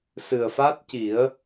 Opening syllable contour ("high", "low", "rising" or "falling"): low